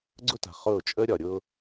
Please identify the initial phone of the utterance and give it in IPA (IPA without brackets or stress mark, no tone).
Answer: ɡ͡ǀ